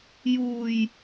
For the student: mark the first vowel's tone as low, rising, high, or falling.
low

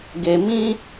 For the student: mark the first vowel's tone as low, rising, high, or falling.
low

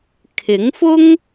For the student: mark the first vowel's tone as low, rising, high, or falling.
rising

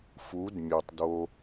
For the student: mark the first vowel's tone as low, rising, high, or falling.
rising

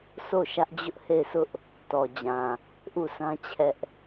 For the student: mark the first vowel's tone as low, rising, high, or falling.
falling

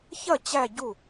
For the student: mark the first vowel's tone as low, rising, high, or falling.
falling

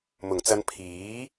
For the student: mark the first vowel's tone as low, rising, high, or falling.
low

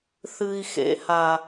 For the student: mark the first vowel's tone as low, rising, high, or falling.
high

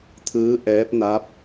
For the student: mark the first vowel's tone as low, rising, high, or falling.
rising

